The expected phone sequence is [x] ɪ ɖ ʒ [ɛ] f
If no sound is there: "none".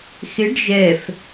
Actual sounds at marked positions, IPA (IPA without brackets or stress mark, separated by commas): x, ɛ